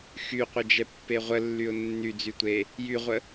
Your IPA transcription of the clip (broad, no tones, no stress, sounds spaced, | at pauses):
x y qʷ ə d͡ʒ ɛ pː e ʁʷ ə lː y ʊ̯ nː y d͡z y tʷ e | j y ʁʷ ə